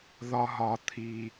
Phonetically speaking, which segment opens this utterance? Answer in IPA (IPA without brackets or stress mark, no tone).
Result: ð